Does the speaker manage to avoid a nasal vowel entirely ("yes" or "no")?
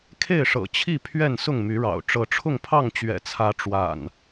yes